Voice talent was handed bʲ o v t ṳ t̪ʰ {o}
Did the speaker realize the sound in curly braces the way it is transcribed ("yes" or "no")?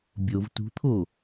yes